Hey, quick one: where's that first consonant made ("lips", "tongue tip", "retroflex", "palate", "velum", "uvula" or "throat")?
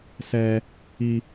tongue tip